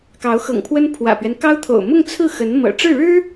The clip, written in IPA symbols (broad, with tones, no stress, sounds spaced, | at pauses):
k ɑ˧˥ ʊ̯ x ɤ̰˨˩ ŋ pʰ w ə˥ n pʰ w ä̰˨˩ p ɥ ɛ˦ n k ɑ˥ ʊ̯ t̪ʰ o̰˨˩ ʊ̯ m ʊ˥˧ ŋ t͡sʰ ɹ̩˥˩ x ə˧˥ n m ɤ̰˨˩ ʈ͡ʂ ɻ̩˥˩ ɻ ɻ̩˥